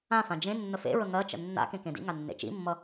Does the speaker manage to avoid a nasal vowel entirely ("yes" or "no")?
no